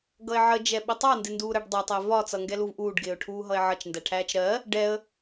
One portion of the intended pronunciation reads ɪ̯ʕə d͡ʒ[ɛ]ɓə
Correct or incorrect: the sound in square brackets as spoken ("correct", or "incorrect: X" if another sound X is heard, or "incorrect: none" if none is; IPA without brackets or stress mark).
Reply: correct